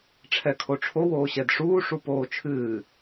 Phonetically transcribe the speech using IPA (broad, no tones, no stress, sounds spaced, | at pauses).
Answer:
ʈ͡ʂʰ ɛ kʰ o ʈ͡ʂʰ o w oː ɕ ɛ d ʂ uː ʂ u p oː t͡ʃʰ ɨː